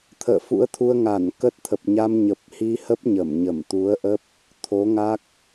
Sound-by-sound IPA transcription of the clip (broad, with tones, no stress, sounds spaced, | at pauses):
t̪ʰ ə̰ː˧˨ f ṵ˧˥ ə̯ t̪ʰ u˧ ə̯ ŋ a˧˩ n k ə˦˥ t̚ t̪ʰ ə˨˩ p̚ ɲ a˧ m ɲ ə˨˩ p̚ h i˧ h ə˦˥ p̚ ɲ ə˧˩ m ɲ ə˧˩ m t̪ u˨˦ ə̯ ʔ ə˦˥ p̚ | t̪ʰ o˨˦ ŋ a˦˥ k̚